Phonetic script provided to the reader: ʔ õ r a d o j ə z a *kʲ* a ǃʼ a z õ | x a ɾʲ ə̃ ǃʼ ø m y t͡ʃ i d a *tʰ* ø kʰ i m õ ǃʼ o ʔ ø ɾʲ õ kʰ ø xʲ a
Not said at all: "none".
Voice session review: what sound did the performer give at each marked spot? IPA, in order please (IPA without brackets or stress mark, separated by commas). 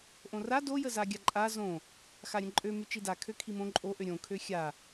ɡʲ, kʰ